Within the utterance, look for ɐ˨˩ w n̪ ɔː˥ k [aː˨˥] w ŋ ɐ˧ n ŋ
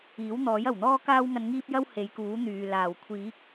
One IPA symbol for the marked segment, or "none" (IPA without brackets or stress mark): aː˥